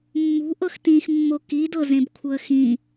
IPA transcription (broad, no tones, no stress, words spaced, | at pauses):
mːṳʔɤx tĩxmːo kidɤzẽbkʷʰɤə̯ xĩ